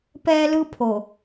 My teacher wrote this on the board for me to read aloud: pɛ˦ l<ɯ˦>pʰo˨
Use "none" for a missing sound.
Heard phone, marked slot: ɯ˦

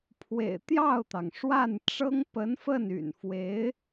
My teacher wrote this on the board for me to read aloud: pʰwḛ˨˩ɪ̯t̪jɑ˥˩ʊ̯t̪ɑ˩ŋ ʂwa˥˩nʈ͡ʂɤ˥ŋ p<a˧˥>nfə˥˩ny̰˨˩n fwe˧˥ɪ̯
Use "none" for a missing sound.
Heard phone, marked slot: ə˧˥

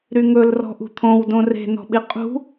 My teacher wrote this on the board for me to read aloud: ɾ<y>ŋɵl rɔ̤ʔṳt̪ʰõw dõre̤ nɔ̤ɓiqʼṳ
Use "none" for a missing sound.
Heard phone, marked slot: y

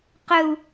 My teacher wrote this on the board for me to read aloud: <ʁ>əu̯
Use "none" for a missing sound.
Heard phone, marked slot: q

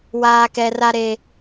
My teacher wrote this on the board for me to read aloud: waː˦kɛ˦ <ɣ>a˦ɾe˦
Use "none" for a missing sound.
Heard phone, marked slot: r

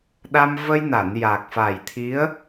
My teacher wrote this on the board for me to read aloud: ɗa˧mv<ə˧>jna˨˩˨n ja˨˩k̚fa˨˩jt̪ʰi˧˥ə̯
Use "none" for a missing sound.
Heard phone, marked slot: ə˧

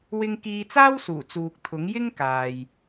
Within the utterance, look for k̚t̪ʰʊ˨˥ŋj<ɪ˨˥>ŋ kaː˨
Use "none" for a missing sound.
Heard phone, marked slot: ɪ˥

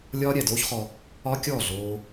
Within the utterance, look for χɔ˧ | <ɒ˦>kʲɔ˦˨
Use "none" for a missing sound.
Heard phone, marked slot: ɒ˦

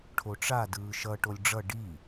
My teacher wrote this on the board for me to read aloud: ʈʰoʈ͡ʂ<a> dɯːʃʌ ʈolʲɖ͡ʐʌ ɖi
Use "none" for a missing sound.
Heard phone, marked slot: a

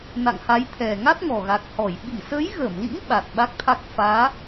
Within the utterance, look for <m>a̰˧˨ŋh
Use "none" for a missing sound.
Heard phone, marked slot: n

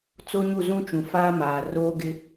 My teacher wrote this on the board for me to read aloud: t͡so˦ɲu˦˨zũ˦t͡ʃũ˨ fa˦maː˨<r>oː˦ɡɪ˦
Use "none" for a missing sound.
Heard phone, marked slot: r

